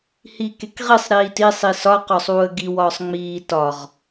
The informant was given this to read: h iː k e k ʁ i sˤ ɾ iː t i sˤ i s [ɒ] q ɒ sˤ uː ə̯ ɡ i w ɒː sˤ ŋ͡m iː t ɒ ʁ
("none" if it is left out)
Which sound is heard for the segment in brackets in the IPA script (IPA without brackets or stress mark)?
ɒ